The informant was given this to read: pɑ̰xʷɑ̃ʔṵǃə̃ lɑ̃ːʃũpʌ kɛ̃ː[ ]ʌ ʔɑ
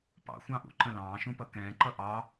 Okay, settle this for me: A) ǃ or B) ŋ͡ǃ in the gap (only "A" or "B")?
A